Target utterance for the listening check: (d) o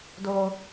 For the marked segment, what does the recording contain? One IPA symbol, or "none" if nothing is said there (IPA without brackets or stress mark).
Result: d